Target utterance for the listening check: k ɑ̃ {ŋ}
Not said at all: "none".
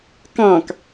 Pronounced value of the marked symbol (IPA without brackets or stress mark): k